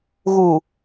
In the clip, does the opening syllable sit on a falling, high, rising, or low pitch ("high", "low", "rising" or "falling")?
low